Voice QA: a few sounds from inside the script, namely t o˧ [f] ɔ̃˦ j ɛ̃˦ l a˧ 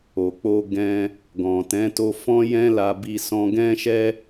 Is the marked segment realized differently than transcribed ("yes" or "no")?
no